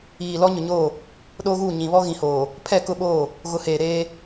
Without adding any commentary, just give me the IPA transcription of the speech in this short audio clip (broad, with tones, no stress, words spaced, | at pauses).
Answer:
iː˨ lɔ˦ ɲʊ˨ɲoː˦˨ | ɗoː˦ɣuː˦˨ ɲĩ˨ βɔ˦ɣĩ˨hoː˨ | pʰɛ˦˨kʊ˦ɓoː˦˨ | ɣʊ˨˦heː˨ ɾeː˦